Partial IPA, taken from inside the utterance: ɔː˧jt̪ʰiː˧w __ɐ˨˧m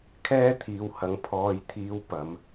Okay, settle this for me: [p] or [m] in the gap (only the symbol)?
p